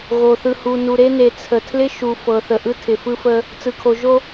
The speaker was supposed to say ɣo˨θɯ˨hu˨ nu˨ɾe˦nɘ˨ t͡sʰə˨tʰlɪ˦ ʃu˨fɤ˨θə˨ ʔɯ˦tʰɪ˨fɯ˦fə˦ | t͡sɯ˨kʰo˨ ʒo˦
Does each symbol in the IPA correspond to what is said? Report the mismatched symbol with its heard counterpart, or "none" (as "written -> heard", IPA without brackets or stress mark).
ɘ˨ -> e˨